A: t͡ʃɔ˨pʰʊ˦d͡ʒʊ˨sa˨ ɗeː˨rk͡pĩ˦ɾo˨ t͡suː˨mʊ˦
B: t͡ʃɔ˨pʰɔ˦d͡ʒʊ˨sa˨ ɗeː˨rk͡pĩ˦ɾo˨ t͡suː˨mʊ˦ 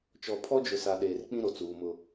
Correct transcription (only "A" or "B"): B